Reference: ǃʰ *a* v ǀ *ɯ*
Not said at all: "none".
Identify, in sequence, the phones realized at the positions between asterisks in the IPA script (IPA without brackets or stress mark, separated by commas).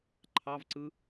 ɑ, ɯ